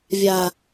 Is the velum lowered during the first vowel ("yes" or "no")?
no